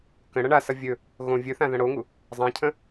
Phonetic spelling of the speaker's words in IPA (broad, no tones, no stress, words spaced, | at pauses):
kə̃ ɽɐɳasʌ vʲɵ | ɣõ vʲɵθã ðɐ̃ɽoŋu | zˤãcʰə̃